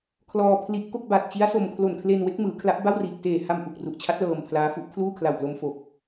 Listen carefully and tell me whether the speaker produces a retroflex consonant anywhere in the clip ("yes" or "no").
no